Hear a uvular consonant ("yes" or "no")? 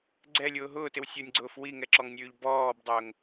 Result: no